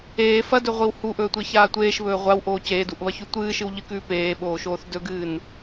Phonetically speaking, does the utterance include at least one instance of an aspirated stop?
no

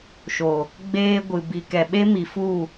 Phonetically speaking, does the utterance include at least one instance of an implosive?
yes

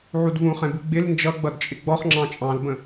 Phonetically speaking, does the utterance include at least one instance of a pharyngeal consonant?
yes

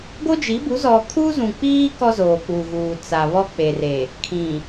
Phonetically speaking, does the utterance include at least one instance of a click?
no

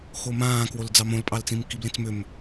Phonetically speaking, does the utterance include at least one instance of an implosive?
no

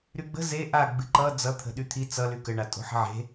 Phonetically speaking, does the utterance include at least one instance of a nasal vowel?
no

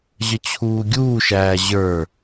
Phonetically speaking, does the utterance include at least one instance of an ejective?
no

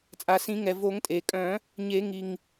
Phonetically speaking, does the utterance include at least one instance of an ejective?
yes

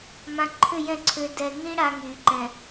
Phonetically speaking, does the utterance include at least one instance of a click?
yes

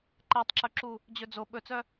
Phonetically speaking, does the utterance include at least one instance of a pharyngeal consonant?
no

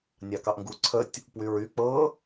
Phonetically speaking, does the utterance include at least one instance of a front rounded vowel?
yes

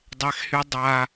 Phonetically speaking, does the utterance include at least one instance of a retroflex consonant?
no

